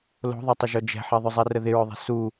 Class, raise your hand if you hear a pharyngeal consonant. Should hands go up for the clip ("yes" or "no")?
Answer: yes